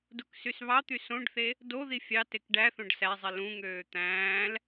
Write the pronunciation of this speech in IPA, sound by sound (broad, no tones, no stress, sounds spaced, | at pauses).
d u k s y s β ɑ t̪ y s õ ɖ θ e | d o ð i fʲ ɑ t e k ɖ æ θ õ ɖ s æ zˤ i l ũ ŋ øː t̪ æ̃ː l